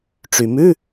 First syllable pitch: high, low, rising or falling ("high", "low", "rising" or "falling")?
low